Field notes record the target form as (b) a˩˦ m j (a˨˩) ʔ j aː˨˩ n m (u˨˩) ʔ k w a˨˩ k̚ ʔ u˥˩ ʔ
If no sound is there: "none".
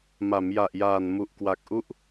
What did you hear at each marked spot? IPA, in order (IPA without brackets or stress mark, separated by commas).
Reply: m, a˨˩, u˨˩